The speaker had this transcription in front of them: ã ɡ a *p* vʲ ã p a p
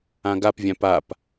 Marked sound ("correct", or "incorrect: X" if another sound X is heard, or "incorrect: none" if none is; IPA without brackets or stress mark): correct